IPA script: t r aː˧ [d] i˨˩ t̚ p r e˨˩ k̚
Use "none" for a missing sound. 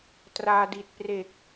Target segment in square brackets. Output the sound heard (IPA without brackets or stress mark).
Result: d